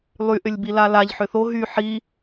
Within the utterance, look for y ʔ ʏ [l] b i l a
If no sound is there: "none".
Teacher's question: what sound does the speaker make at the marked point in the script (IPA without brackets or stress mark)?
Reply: lʲ